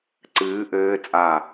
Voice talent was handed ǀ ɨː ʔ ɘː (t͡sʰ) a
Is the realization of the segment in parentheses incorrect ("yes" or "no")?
yes